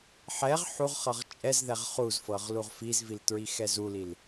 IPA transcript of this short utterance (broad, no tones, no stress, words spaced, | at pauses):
ħɛʁ ħuʁχɤʁ t͡ʃʼɛzðɛʁ χuzfɤʁ luʁfizvil tɹixɛzulil